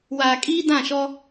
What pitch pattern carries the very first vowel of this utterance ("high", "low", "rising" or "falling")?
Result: low